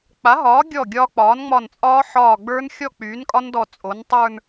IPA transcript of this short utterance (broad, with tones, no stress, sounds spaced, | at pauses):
k͡p a˩˥ ɦ ɒː˩˥ ɡʲ ɔ˧˩ ɡʲ ɒː˦˥ k͡p ɒː˩˥ n ŋ͡m ɒ˧˩ n t͡sʼ ɒː˦˥ ħ ɒː˧˩ ɡ͡b ə˞˦˥ n xʲ ɔ˥˧ k͡p yː˩˥ n kʼ ɒ˦˥ n d ɔ˧˩ t͡sʼ o˩˥ n tˤ ə˞˥˧ n